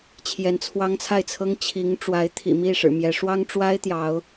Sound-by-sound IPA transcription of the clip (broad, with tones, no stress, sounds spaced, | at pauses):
t͡ɕʰ j ɛ˧˥ n t͡sʰ w ɑ˥ ŋ t͡sʰ a˥˩ ɪ̯ t͡sʰ ɤ˥ ŋ t͡ɕʰ i˧˥ ŋ ʈ͡ʂ w a˧˥ ɪ̯ t̪ʰ ḭ˨˩ m i˥˩ ʂ ɻ̩˨˩ m j ɛ˧˥ ʂ w ɑ˥ ŋ ʈ͡ʂ w a˥ ɪ̯ t̪ j ɑ˧˥ ʊ̯